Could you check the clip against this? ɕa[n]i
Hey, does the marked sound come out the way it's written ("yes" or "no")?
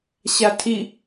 no